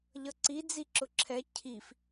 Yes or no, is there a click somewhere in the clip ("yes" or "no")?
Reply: yes